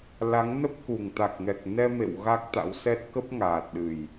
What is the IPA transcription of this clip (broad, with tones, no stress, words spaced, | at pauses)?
la˨˦ŋ nə˦˥p̚ku˨˩ŋ t̪a˨˩k̚ŋɛ˨˩k̚ nɛ˧mḛ˧˨w ɣa˦˥k̚t̪a̰˧˥wsɛ˦˥t̚ kə˦˥p̚ŋaː˨˩t̚ɗɨ˨˩j